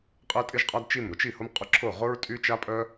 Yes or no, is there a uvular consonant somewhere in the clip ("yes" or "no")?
yes